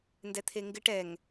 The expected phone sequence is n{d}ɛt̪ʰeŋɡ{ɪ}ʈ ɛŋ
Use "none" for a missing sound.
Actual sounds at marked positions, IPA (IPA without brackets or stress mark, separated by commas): d, ɪ